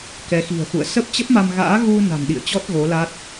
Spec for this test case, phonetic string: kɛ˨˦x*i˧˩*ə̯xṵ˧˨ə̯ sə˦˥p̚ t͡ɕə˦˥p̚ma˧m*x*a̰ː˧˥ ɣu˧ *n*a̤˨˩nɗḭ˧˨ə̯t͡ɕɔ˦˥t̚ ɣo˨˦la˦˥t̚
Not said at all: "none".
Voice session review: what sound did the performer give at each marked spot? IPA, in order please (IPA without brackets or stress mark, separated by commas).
i̤˨˩, ɣ, n